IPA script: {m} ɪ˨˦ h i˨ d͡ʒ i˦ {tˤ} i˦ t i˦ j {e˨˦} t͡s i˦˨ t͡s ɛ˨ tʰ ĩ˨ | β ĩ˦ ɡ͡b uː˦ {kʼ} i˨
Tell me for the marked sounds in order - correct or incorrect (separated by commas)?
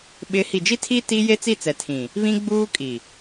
incorrect, incorrect, incorrect, correct